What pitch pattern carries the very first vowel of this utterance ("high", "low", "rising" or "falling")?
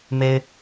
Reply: high